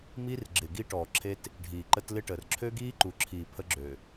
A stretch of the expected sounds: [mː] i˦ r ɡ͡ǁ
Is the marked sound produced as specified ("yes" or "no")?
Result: no